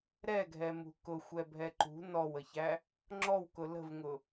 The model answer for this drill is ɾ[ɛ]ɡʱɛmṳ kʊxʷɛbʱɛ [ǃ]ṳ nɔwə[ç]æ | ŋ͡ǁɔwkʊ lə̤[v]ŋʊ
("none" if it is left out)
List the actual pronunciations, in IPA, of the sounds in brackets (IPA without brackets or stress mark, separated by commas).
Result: ɛ, ǃ, ç, v